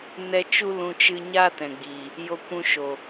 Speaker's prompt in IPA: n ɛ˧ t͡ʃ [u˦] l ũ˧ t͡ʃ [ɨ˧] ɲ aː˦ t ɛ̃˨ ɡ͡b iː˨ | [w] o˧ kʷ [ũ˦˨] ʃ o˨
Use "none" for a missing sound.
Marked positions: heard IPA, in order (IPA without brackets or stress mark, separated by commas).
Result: u˦, ɨ˧, j, ũ˧